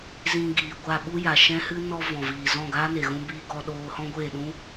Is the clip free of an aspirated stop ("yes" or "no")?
yes